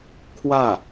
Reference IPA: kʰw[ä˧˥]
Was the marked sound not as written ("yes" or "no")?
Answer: yes